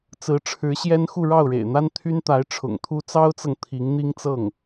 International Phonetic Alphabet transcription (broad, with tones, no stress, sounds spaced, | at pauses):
t͡s ɹ̩˧˥ ʈ͡ʂʰ ɻ̩˧˥ ɕ j ɛ˥ n x u˥˧ ɻ ɑ˥˩ ʊ̯ ɻ ḛ˨˩ ɪ̯ n̪ a˥ n t̪ʰ y˥ n t̪ a˧˥ ɪ̯ ʈ͡ʂʰ ʊ̰˨˩ ŋ t̪ʰ u˥ t͡s ɑ˥ ʊ̯ t͡s ɤ˨ ŋ t̪ʰ i˧˥ ŋ n̪ i˥ ŋ t͡s ɤ˥˩ ŋ